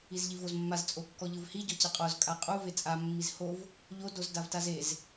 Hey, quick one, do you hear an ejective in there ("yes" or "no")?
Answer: yes